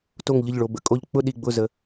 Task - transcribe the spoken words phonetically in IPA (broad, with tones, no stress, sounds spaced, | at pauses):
t o˧˩ ŋ ʎ ə˧˩ ʎ ɭ o˩ b ə̰˧˩ kʼ o˧˩ ʎ k͡p ʊ˥˧ ɗ i˩ ɡ͡b ʊ˧˩ z ə˩